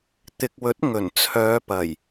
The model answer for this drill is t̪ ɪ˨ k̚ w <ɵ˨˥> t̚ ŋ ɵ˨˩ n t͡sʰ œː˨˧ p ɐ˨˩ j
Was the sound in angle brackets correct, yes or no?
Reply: yes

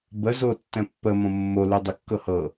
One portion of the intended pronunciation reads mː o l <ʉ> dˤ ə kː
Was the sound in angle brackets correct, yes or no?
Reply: yes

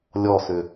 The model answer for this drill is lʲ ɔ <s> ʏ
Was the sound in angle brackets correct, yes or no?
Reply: yes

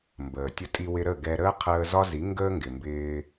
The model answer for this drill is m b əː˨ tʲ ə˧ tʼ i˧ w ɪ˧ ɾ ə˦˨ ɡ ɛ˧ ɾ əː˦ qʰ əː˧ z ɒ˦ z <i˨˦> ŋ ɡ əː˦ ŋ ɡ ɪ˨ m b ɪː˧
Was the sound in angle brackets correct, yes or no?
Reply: yes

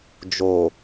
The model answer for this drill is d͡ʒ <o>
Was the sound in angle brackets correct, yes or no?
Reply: yes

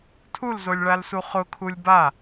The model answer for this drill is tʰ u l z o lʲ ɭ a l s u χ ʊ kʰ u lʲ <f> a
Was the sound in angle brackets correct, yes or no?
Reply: no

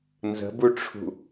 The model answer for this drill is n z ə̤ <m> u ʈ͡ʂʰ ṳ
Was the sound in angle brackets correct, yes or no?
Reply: no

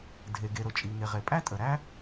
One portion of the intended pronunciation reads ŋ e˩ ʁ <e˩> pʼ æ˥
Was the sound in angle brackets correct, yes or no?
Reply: yes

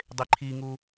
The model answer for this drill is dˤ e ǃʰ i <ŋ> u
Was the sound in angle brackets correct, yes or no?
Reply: yes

